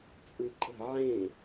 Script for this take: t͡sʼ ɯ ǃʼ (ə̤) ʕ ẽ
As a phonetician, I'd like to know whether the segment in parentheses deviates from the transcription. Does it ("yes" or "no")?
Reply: no